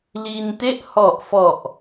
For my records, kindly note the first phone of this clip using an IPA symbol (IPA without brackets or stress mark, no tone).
l